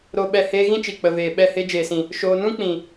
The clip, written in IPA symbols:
ɾ o˧ ɓ ɛ˧ h eː˧ ɣ ĩ˦ t͡ʃ i˨ k͡p ə˨ v eː˨ ɓ ɛ˦˨ h e˦ d͡ʒ eː˨ s ĩ˨ | ʃ oː˧ n ũ˦ k͡p ĩ˨

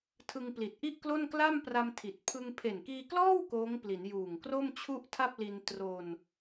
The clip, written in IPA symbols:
tʰ ɯ˧ ŋ p l i˨˩ t̚ ʔ i˥˩ ʔ k l o˥˩ n k l a˥˩ m p r a˧ m tʰ i˨˩ t̚ pʰ ɯ˧ ŋ pʰ e˨˩ n k iː˧ k l ɔː˥˩ w k oː˦˥ ŋ p l i˩˦ n j uː˨˩ ŋ k r o˥˩ m t͡ɕʰ u˥˩ ʔ tʰ a˥˩ p̚ l i˧ n t r o˧ n

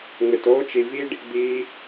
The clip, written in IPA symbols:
ŋ͡m ɪ˨ t oː˦ t͡ʃ i˨ v i˦ ɖ | d̪ iː˧

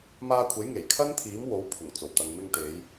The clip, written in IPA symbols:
m aː˧ kʷʰ e˨˥ j ŋ e˨˩ j kʰ ɐ˥ n t̪ʰ iː˨˥ m w o˨˥ w pʰ ʊ˨˩ ŋ t͡s o˨˩ w t̪ ɐ˨ ŋ m ɪ˧ ŋ t̪ e˨˧ j

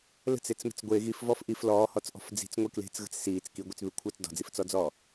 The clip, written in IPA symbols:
l ə̤ t͡s e t͡s m ə̤ t͡s ɡʷ e ɣ i f v ɔ f ʔ i f l ɔː h ɔ t͡s ʔ ɔ̤ f d͡z i̤ t͡s ŋʷ e k l e̤ t͡s ɣ ə̤ t͡s s iː t͡s k i ɡʷ i t͡s β ʉ kʷʰ əː t͡s d ɔ̤ d͡z i f t͡s ɔ d͡z ɔː

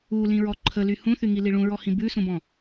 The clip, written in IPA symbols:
u l ĩ ɹ ɔ ǃʰ ə l y h ũ θ y ŋ i l i ɭ ũ ɹ ɔ h ĩ b ʉ s ũ b ɔ̃

